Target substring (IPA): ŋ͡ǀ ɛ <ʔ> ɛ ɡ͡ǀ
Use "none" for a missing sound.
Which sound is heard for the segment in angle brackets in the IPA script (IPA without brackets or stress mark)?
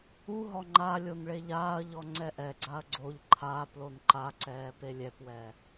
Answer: ʔ